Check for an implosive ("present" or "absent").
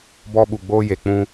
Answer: present